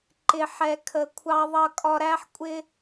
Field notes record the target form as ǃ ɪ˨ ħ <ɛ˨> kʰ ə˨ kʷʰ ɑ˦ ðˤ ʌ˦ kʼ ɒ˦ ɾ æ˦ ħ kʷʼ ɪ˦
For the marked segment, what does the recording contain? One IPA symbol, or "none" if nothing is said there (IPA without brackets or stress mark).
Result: ɛ˨